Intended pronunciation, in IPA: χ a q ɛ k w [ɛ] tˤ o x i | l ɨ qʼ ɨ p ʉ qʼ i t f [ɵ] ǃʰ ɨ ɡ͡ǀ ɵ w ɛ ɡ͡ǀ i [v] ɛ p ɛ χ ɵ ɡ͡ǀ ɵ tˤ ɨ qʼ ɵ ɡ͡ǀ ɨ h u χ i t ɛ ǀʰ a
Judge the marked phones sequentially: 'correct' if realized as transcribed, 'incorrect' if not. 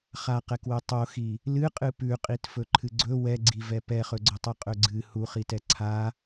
incorrect, correct, correct

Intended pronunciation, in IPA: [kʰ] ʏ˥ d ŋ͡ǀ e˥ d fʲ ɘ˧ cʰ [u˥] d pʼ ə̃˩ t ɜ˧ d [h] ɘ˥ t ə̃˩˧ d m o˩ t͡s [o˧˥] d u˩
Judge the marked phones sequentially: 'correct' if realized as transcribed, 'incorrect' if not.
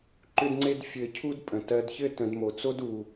incorrect, correct, incorrect, incorrect

